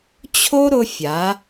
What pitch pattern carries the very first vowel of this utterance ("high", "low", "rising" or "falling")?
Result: high